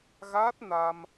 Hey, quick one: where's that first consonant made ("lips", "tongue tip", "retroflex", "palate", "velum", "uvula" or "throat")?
velum